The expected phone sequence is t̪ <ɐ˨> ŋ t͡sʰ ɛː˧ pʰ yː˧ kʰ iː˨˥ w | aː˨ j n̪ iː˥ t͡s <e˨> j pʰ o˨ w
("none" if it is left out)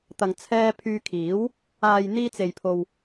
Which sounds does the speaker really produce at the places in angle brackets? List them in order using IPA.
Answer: ɐ˨, e˨

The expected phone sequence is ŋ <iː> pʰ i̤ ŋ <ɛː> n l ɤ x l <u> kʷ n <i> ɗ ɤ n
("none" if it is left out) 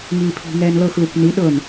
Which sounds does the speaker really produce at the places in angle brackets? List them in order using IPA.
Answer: iː, ɛː, u, i

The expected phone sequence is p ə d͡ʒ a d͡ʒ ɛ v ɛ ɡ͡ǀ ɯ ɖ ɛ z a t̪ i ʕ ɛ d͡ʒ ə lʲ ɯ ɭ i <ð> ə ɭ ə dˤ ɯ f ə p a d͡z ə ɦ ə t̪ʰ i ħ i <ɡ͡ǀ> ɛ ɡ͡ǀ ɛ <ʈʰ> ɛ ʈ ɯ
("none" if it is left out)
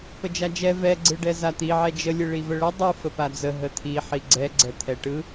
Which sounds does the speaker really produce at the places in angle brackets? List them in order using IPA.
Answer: v, ɡ͡ǀ, t̪ʰ

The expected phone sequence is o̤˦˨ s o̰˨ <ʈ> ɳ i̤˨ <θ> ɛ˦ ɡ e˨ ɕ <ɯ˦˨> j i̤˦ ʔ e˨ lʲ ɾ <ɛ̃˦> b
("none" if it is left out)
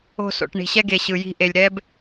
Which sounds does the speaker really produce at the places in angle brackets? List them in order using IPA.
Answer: ʈ, ɕ, ɯ˨, ɛ˦

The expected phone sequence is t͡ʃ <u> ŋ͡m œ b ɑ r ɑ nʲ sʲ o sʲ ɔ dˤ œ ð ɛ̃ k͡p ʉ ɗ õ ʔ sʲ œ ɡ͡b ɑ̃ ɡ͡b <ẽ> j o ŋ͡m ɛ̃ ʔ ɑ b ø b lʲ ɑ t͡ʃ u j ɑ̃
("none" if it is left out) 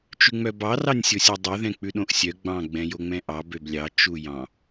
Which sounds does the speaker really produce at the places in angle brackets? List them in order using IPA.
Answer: ʉ, ɛ̃

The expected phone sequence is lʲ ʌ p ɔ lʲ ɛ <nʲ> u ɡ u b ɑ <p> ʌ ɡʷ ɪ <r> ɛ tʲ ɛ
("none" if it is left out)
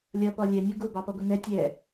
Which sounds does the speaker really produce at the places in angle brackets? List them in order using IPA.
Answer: nʲ, p, n

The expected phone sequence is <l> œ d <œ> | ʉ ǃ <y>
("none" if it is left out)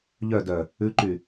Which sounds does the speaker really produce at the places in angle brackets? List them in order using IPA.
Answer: ʎ, œ, y

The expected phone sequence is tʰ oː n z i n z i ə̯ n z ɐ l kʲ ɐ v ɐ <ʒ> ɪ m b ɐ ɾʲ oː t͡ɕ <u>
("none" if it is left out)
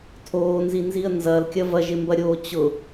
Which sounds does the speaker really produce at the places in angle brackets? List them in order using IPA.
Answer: ʒ, ʊ

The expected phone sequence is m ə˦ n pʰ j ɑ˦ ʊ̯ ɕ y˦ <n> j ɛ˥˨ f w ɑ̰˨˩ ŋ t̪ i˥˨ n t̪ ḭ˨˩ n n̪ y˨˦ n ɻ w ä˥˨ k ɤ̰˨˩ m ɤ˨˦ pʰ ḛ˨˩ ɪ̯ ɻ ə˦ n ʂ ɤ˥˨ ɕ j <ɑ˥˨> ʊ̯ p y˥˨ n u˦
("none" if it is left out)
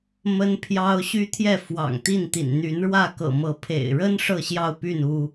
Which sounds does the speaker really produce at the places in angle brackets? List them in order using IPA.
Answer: t̪ʰ, ɑ˥˨

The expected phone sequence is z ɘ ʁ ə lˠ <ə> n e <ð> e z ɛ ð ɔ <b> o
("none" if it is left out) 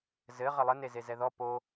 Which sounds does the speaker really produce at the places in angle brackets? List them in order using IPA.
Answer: ə, z, p

